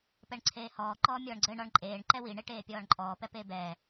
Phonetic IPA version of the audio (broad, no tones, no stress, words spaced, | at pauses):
pɛɳǀʰeːhɔː ǃɔːmʲɔːɳɡ͡ǀɘ ɳɔɳǃʼeːɳ ǃɛwi ɳeʈeːpʲɔːɳǃʼɔː pɛpeːbɛː